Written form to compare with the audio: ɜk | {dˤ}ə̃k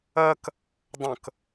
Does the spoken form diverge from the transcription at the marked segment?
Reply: no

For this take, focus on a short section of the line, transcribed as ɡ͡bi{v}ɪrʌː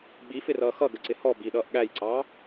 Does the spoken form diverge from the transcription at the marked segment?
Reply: yes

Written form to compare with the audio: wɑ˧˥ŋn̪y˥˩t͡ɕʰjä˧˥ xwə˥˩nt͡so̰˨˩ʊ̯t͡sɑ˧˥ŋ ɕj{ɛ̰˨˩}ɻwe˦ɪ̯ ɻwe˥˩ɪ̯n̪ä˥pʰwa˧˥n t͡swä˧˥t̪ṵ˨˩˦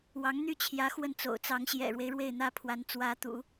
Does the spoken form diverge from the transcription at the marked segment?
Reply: no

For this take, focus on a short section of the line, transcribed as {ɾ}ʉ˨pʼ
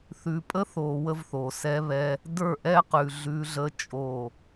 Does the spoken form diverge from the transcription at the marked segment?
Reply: yes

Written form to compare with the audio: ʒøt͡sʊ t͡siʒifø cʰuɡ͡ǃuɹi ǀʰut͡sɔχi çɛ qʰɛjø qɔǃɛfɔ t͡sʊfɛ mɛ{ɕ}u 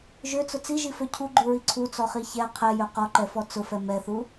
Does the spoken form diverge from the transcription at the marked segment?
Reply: yes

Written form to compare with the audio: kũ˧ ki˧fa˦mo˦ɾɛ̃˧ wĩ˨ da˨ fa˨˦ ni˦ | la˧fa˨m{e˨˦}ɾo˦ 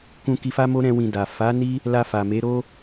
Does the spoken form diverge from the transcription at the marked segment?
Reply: no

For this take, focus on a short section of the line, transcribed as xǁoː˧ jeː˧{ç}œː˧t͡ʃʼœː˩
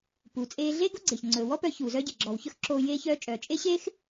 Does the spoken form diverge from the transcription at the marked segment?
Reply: no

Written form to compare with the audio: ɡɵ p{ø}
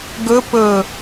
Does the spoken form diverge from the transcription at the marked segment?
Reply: yes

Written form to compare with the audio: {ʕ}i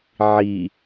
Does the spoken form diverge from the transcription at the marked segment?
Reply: no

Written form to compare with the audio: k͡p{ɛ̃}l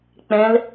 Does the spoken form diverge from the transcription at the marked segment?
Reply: no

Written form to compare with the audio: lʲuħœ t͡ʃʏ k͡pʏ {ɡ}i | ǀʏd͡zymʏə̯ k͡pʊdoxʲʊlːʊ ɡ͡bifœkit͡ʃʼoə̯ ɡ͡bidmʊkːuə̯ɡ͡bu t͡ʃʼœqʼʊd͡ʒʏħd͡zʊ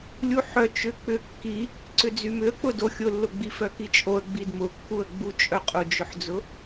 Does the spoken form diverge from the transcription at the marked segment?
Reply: yes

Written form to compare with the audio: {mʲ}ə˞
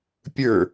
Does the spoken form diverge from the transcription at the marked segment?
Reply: yes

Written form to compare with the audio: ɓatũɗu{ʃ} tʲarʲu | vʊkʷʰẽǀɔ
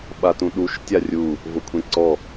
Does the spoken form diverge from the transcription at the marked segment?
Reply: no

